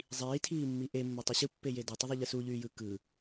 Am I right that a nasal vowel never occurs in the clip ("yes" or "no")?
yes